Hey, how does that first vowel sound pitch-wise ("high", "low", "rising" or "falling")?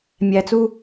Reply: low